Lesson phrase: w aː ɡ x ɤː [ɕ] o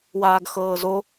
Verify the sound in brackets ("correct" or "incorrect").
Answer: incorrect